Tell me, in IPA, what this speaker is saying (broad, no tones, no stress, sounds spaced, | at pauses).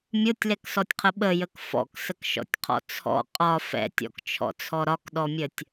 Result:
mʲ o tʲ l ɛ k s ɔ tʲ qʰ ə ɓ ə j ə k f ɔ̰ k s ə k ʃ ɔ̰ tʲ qʰ ɔ̰ t͡sʰ ɔ̰ qʼ ɒ f ɛ̰ tʲ ɔ̰ k t͡ʃʰ ɔ̰ t͡sʰ ɔ ɾ ɒ k ɗ ɔ mʲ ə tʲ